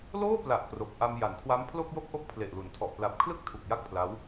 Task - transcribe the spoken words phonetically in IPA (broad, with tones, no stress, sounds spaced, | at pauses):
l oː˥˩ p l a˨˩ ʔ k r o˨˩ k̚ ʔ a˧ m j a˩˦ n kʰ w a˦˥ m pʰ l o˥˩ k̚ j o˥˩ k̚ ʔ o˥˩ k̚ pʰ l e˨˩ ʔ l u˩˦ n tʰ ɔ˨˩ ʔ p l a˨˩ p̚ kʰ l ɯ˥˩ k̚ tʰ u˨˩ k̚ j a˥˩ k̚ pʰ l a˦˥ w